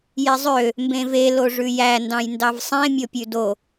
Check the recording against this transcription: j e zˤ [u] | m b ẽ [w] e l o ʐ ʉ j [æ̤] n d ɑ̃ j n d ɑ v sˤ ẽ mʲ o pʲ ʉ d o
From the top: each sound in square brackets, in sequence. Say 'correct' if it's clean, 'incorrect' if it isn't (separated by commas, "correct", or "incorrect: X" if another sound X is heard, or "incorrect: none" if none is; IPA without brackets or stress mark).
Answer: incorrect: ø, incorrect: v, incorrect: æ